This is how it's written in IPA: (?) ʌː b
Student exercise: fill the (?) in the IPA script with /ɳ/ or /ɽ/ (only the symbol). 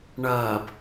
ɳ